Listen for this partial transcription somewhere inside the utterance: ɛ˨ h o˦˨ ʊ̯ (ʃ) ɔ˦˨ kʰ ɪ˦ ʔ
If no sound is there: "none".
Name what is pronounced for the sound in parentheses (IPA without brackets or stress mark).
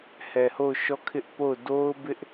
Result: ʃ